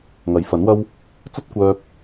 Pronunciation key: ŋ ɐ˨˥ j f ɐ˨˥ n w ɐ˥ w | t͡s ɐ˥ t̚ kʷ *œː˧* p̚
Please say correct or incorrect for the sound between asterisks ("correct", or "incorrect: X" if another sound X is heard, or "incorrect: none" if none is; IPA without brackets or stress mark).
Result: correct